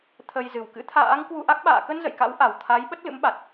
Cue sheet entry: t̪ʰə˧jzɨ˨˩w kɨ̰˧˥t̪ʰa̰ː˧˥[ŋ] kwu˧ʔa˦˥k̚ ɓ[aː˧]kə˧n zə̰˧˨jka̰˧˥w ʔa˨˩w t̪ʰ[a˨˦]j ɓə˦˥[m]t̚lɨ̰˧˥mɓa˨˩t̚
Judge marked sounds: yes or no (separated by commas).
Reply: yes, no, yes, no